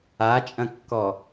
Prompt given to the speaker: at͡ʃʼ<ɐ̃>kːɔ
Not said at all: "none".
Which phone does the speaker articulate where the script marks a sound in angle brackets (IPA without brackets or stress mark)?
ɐ̃